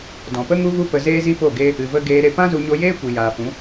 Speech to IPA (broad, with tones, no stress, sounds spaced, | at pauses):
d ɔ̃˨ p ə˦ ŋ u˦ v u˦ p ə˧ z eː˦ z i˦ p o˦˨ ɡ e˦ | ɨ˨ v ə˧ ɡ eː˧ ɾ e˧ p ã˦ z u˧ ɲ o˧ j eː˦ kʷ i˨ j aː˨ f ũ˨˦